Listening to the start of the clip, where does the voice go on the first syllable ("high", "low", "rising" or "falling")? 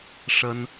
high